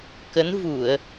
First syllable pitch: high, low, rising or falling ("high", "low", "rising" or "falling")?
rising